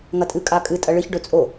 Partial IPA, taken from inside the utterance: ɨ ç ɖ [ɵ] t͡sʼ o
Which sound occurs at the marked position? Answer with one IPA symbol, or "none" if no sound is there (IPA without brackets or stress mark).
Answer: ɵ